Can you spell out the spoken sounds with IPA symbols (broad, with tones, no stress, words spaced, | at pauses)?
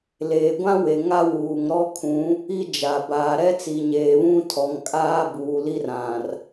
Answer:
leː˨ɡʷã˦we˨ ŋa˦wuː˨ŋ ɾɔ˦kʰũ˨˦ | i˦d͡ʒa˨ baː˨ɾɛ˦t͡si˨ɲeː˨ βũ˦tʰɔ˨ŋ kʼaː˦buː˨ li˦rã˨r